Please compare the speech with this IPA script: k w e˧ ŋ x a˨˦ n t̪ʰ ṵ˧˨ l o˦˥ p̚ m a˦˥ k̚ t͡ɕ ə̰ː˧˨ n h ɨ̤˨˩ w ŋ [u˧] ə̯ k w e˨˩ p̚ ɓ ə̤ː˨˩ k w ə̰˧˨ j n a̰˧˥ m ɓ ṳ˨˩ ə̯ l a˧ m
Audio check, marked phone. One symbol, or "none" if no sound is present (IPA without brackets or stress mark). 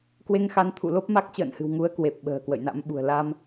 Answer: u˨˦